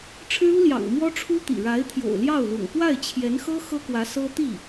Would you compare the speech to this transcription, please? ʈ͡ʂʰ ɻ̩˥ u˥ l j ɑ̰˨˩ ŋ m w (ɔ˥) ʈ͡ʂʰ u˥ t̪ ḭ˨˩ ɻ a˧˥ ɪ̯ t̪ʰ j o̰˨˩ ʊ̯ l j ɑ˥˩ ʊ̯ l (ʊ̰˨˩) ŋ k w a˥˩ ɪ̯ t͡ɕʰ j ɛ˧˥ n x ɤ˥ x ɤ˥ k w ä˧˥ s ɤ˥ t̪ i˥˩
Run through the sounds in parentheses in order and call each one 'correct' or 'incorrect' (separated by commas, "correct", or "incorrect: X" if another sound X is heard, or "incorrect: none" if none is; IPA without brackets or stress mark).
correct, correct